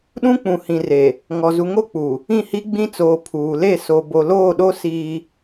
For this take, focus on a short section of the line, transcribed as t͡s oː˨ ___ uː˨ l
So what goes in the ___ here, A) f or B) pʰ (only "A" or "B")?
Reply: B